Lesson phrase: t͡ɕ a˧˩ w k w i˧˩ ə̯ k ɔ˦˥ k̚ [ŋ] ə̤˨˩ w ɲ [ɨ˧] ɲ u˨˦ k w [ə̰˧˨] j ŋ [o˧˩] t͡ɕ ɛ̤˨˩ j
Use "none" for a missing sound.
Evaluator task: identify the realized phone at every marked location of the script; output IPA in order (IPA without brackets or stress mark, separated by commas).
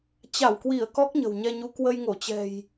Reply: ɲ, ɛ˧, ə˧, o˧˩